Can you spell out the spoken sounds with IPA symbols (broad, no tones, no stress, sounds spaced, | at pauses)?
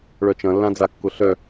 ɭ œ t͡ʃ ɐ̃ lː ã d͡z a kː ʊ ɬ œ